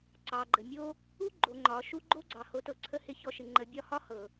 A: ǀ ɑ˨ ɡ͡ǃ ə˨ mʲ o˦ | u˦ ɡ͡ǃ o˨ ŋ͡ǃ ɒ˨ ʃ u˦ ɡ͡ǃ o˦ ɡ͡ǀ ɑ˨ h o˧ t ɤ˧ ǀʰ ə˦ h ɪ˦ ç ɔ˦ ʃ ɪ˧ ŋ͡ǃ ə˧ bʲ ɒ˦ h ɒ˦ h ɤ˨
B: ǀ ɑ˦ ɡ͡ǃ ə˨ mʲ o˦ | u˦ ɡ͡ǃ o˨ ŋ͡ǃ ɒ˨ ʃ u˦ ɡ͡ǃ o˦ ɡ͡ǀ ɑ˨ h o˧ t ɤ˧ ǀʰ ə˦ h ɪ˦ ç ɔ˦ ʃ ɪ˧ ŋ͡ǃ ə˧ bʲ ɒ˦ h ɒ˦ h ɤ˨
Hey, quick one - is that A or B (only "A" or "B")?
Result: A